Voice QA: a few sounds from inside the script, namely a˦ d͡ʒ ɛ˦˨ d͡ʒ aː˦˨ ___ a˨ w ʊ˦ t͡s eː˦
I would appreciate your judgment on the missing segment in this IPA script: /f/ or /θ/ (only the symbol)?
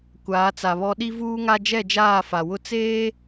f